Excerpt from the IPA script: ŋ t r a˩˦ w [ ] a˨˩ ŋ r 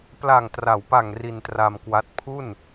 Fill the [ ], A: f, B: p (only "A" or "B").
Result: B